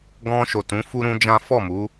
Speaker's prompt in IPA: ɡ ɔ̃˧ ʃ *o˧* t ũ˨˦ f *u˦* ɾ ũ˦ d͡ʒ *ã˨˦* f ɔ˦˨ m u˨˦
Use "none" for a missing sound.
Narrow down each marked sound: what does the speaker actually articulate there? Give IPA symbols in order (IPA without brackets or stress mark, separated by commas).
o˨, u˦, ã˦